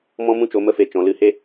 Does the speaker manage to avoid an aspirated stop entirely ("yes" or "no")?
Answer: yes